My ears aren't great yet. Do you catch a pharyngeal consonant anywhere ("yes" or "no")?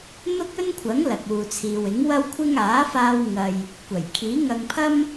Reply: no